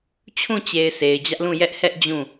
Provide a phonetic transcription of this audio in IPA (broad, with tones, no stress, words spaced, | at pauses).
t͡ɕʰũ˦˨t͡ɕe˨ɪ̯ se˨ɪ̯ d͡ʑä˦ʔlũ˦˨ jɛ˦ʔhɛ˦ʔ d͡ʑũ˦˨